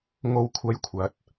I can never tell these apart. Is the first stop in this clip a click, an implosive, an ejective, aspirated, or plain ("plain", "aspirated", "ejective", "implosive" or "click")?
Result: aspirated